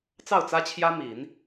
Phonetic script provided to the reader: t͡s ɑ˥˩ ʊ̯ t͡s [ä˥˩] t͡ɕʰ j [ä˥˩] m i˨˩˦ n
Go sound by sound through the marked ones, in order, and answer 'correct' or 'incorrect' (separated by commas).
incorrect, incorrect